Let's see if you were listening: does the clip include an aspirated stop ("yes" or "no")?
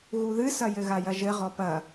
no